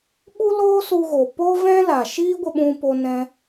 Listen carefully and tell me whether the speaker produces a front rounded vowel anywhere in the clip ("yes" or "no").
no